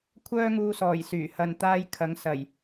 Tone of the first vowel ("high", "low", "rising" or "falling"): high